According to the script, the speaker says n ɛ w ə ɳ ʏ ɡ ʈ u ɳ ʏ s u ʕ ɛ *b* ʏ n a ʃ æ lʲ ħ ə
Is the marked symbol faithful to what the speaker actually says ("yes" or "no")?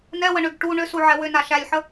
no